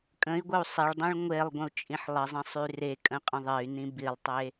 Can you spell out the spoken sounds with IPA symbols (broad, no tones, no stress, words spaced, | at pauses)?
kʼə̃i̯ɡʷəu̯ sˤeɭdˤĩɭ ŋʷelˠ ɡʷə̃u̯t͡ʃʼĩħlˠəzˤə̃ sˤyrekʼə̃ qʼə̃ðˤey̯nĩ bilˠtˤe